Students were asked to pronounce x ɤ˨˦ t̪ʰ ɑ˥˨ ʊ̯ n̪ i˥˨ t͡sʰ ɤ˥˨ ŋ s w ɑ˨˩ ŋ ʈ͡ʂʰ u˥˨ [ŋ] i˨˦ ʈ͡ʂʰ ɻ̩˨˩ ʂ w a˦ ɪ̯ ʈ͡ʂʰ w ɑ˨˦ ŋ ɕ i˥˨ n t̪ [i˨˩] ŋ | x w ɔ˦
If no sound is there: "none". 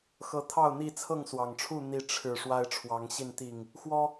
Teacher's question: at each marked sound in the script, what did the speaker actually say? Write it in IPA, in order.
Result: n̪, i˨˩

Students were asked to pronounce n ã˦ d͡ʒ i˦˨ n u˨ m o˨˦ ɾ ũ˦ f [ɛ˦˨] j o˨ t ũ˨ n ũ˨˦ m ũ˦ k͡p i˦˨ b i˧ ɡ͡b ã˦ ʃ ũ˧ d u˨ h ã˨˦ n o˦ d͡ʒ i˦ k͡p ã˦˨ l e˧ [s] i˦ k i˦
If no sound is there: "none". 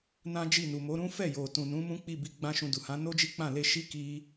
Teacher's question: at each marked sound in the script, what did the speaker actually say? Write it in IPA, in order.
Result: ɛ˦˨, ʃ

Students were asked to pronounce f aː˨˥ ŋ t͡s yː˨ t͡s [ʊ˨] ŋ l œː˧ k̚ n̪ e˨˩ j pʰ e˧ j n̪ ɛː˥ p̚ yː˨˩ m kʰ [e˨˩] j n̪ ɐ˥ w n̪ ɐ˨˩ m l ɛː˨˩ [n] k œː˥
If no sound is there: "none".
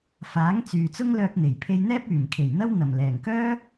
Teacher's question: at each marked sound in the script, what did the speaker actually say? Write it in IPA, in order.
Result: ʊ˥, e˨˩, ŋ

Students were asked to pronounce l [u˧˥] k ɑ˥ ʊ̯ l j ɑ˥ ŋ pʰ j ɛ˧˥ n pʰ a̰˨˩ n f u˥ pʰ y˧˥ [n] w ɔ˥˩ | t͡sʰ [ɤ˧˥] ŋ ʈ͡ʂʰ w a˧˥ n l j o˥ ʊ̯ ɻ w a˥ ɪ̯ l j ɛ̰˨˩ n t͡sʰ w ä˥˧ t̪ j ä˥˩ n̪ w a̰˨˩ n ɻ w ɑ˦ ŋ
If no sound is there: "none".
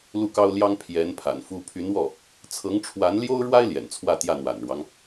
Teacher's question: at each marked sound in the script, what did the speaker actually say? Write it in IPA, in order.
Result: u˥˩, n, ɤ˧˥

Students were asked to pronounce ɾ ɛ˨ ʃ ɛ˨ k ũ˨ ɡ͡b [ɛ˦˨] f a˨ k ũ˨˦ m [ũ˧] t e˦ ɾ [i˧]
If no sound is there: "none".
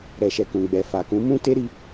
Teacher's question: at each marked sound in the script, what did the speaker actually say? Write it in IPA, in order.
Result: ɛ˨, ũ˦, i˧

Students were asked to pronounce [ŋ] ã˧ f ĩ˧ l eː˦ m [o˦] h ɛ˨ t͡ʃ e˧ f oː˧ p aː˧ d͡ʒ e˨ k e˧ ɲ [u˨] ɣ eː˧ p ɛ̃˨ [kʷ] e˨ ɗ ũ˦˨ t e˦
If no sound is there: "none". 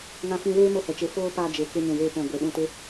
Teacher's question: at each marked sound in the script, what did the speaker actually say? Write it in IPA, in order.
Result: ŋ, o˦, ũ˨, ɡʷ

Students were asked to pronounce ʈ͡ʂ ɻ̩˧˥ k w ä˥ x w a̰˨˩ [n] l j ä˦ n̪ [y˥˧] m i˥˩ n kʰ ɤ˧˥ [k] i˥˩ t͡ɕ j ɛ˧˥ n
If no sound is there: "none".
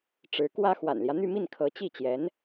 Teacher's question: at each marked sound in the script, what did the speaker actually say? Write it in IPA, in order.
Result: n, y˥˧, t͡ɕ

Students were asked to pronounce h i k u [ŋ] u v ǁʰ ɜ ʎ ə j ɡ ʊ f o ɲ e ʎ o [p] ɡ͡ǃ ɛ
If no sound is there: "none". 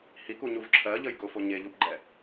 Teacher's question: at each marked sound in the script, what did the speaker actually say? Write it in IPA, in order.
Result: ɲ, p

